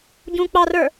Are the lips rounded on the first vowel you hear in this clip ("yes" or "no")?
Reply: yes